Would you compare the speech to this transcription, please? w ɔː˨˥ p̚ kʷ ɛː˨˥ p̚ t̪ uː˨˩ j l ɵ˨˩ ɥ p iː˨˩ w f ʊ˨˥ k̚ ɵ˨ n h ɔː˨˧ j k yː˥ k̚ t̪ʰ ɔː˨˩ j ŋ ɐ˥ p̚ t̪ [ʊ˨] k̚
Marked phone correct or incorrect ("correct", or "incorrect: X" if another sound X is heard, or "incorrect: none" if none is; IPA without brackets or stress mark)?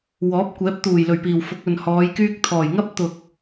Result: correct